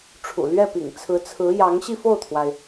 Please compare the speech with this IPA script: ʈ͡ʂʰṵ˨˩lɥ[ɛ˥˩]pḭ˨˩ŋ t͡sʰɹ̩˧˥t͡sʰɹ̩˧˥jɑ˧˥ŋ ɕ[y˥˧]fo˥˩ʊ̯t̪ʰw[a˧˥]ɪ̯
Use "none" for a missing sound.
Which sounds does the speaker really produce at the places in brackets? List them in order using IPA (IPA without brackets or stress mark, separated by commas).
ɛ˥˩, i˥˧, a˩